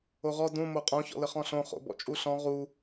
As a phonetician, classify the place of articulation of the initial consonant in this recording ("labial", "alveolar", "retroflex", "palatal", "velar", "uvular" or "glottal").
uvular